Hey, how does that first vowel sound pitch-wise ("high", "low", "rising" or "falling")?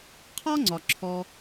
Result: high